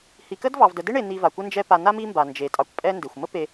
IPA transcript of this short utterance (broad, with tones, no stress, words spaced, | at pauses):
hi˨kə˥dvɑ˨vdə˨ de˥ɳe˨ n̪i˨ va˩kʷə˦ nd͡ʒɛ˦pa˨ na˥mi˦mba˩ nd͡ʒe˩ tʼɑ˨kʷpʼɛ˦nde˩xʷ mə˥pe˨